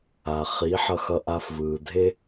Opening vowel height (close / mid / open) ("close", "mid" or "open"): open